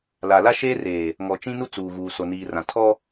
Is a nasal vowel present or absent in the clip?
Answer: present